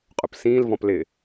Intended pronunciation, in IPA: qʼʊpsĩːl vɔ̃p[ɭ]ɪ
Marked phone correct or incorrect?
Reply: incorrect